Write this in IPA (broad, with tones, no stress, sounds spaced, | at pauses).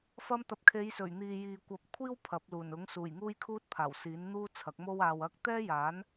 f ɐ˧ m t̪ ɐ˨ p̚ kʰ e˨˧ j s ɵ˨˩ ɥ n̪ iː˨ j iː˨ kʷ ɐ˨˥ p̚ kʷʰ iː˥ w pʰ ɐ˨˥ p̚ l uː˨˩ n ʊ˨˥ ŋ s uː˨˩ j ŋ uː˥ j kʰ uː˥ t̚ pʰ aː˨˩ w s iː˨˥ n n̪ uː˥ t͡sʰ ɐ˨˥ k̚ m o˥ w aː˨ w ɐ˧ k̚ t̪ ɛː˥ j aː˨˥ n